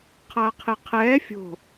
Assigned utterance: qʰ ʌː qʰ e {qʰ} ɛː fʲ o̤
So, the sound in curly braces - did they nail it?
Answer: yes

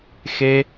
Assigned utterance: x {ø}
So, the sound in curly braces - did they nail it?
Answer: no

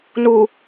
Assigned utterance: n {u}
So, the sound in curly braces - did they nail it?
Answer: yes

